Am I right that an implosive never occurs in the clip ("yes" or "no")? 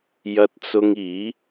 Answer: yes